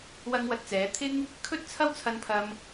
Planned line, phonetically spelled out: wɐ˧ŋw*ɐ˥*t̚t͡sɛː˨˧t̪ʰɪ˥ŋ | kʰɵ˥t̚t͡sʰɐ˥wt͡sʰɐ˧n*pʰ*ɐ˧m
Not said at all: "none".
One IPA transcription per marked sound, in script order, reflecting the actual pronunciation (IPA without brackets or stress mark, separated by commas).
ɐ˨, pʰ